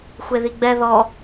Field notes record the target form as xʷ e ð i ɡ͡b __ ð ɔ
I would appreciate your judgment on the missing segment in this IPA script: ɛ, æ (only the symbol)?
ɛ